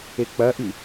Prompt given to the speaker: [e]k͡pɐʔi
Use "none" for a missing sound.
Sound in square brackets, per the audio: e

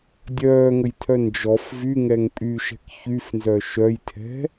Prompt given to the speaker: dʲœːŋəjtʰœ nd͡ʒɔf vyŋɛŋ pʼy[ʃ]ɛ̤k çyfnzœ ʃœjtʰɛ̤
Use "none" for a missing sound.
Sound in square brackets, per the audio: ʃ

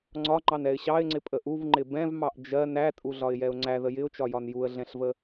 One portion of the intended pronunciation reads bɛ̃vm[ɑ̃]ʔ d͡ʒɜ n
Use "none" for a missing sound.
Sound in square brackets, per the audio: ɑ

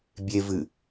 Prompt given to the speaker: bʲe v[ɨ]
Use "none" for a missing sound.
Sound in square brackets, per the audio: ɨ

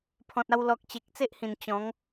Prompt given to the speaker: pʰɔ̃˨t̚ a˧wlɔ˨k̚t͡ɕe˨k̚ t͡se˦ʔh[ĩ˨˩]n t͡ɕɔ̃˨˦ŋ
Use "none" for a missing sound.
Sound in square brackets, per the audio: ĩ˨˩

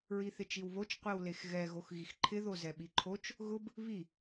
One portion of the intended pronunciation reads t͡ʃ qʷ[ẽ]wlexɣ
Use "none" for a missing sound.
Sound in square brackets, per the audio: e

